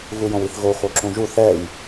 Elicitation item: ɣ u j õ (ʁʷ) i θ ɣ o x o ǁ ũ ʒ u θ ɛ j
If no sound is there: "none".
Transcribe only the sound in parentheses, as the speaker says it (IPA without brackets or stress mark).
w